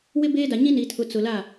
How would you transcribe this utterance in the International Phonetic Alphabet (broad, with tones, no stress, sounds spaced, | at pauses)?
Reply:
w ɪ˦ b eː˦ d a˨ ɲ ĩ˦ n i˨ tʰ ʊ˨ t͡s ʊ˨ l a˦˨